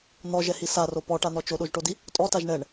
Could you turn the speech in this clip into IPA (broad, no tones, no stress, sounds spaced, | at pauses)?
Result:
n̪ ɔ ʒ ɛ h i s a r o p ɔ ʈ a n̪ ɔ t͡ʃ o ɗ o ʒ ʈ o d i | tʼ ɔ t a ʒ ɳ ɛ ɳ